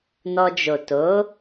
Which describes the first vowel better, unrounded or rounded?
rounded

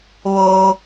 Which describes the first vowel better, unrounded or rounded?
rounded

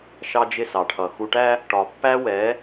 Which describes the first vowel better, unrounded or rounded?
unrounded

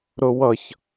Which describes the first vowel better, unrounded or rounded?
rounded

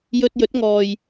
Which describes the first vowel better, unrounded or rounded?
rounded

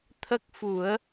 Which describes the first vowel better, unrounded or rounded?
unrounded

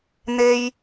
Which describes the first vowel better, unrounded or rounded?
unrounded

